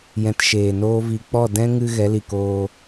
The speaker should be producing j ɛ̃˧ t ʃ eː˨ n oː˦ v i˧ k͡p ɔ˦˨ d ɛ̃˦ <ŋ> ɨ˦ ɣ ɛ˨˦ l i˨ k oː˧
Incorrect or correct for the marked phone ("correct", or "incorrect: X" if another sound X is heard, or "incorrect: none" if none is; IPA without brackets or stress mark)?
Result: correct